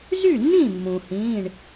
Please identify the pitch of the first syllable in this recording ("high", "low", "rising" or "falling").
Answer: falling